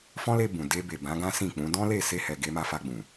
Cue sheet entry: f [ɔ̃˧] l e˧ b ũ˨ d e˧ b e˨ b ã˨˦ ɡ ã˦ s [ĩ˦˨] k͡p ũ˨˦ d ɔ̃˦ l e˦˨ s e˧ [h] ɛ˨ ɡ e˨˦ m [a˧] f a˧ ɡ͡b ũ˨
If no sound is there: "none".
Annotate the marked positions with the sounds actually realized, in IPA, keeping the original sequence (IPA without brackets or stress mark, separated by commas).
ɔ̃˦, ĩ˦˨, h, a˧